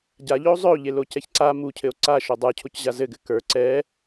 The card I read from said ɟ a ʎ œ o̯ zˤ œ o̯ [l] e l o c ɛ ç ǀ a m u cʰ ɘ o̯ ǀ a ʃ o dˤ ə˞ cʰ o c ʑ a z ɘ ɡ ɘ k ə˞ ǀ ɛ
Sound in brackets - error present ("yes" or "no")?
yes